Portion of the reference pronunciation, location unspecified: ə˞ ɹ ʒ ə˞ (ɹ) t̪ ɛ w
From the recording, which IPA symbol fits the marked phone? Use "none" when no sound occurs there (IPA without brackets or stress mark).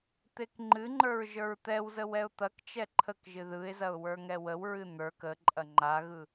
ɹ